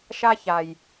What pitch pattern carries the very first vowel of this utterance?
high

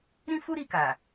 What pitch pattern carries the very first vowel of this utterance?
high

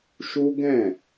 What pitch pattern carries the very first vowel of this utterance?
high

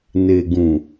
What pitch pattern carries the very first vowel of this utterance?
low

